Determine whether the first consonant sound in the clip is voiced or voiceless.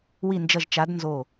voiced